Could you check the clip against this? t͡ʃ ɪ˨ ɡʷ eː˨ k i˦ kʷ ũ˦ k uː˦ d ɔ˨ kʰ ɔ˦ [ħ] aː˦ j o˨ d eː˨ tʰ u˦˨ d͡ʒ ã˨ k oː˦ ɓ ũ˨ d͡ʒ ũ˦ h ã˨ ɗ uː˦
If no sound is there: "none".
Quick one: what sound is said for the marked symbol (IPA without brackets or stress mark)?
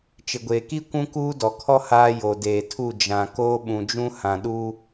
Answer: h